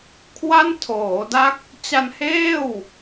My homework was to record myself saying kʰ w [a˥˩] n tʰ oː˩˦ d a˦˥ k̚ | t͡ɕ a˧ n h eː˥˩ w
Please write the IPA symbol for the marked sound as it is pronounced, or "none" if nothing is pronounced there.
a˥˩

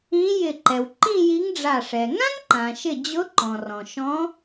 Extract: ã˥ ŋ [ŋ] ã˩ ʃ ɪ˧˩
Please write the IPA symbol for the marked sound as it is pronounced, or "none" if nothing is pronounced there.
ǃ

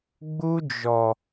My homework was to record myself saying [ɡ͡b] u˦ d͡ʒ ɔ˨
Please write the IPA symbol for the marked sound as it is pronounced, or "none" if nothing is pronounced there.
ɡ͡b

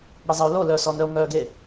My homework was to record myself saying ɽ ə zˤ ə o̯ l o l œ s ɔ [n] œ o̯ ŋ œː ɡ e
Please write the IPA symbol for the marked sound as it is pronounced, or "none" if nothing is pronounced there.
n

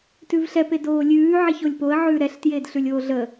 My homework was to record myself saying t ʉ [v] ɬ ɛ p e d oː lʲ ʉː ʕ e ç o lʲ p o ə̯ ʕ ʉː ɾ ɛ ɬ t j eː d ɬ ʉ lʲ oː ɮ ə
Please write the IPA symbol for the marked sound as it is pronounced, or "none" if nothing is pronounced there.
v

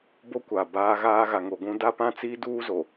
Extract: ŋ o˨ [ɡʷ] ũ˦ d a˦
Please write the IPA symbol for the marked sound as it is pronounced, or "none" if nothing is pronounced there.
ɡʷ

